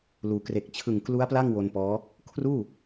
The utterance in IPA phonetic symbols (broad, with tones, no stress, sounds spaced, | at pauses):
l uː˩˦ k r e˨˩ k̚ t͡ɕʰ ɯ˨˩ ŋ k l u˦˥ a̯ p l a˥˩ ŋ w o˧ n p ɔː˦˥ | kʰ r uː˥˩